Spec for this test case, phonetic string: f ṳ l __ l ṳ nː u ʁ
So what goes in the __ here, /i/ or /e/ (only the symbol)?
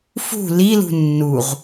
i